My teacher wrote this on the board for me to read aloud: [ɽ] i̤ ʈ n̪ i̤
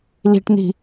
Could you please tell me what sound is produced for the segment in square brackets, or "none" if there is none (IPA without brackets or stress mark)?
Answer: l